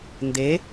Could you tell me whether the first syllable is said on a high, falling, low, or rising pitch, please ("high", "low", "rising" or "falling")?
rising